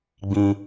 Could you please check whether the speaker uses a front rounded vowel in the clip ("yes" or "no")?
no